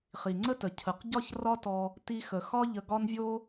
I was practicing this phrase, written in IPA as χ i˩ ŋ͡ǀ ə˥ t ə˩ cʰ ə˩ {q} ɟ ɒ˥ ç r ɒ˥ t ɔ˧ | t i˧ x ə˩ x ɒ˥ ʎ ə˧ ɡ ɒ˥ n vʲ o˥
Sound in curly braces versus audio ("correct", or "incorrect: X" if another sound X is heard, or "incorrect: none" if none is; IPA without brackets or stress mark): correct